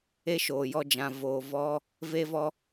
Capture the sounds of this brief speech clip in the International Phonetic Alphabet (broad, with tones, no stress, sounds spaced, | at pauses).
e˦ ʃ oː˨ j ɔ˧ d͡ʒ ã˨ v oː˨ v ɔ˧ | v e˧ v ɔ˧